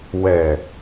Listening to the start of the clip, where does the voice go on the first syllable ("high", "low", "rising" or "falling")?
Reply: low